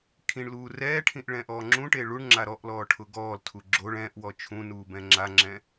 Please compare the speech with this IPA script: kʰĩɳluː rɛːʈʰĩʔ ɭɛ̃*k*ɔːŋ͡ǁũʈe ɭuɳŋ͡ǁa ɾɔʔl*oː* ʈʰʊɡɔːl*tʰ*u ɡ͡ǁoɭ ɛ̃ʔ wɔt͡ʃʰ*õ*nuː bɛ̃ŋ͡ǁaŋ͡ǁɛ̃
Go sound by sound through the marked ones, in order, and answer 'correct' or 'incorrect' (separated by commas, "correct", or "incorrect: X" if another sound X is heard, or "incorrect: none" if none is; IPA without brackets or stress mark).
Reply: incorrect: ʔ, incorrect: ɔː, correct, incorrect: ũ